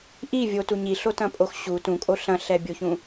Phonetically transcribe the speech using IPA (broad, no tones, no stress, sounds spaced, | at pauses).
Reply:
ʔ i vʲ o t u ɲ i ɬ o t ɐ̃ pʼ o x ɕ u t ũ kʼ o ɬ ɐ̃ ɬ ɛ bʲ o ç ũ